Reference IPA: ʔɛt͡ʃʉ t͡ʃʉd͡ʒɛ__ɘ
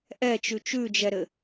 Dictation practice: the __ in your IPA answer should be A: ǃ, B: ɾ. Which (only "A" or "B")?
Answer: B